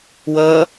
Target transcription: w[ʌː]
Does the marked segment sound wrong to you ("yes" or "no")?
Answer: no